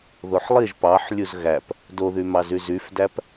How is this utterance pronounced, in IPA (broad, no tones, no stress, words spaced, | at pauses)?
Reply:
ðoħlˠiʒ pɑħ lʲuzɣæp | doðymɑzy zyfdæp